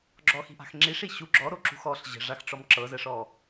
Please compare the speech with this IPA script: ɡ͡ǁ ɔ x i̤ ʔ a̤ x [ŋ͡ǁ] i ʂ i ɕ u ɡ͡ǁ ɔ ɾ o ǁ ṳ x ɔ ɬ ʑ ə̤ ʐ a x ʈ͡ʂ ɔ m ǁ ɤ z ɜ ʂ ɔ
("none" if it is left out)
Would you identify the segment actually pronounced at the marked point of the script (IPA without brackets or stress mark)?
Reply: ŋ͡ǁ